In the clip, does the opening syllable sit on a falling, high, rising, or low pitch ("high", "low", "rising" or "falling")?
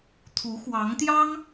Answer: rising